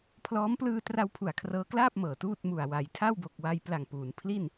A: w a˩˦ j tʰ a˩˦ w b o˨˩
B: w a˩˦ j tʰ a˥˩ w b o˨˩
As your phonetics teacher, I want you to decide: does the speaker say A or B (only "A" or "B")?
B